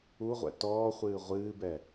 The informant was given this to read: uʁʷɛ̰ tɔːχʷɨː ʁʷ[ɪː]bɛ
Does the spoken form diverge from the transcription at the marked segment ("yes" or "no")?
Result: yes